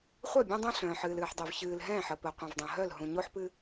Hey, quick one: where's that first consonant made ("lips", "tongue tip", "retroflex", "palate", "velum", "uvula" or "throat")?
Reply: uvula